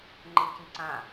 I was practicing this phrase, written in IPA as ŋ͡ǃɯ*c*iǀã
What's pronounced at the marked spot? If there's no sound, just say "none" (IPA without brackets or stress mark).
c